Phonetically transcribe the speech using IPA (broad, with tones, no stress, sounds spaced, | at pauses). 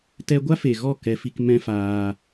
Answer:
t ɛ˧ ɡʷ a˦ f e˨ ɣ ɔ˦˨ k ɛ˧ f i˧ k m ɛ̃˦ f aː˧